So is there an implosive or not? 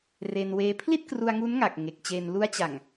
no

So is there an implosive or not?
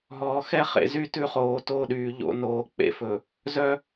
yes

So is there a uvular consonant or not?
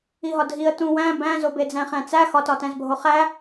yes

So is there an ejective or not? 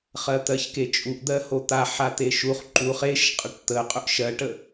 yes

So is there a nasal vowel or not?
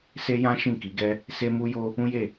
yes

